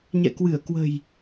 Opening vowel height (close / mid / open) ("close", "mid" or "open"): mid